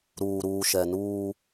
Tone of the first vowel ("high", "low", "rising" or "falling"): low